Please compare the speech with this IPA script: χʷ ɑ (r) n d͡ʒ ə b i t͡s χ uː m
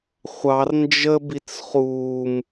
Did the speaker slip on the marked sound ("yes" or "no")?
no